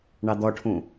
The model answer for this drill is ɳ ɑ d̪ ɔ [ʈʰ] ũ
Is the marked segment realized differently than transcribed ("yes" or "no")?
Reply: no